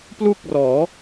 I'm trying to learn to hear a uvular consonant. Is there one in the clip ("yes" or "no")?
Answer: no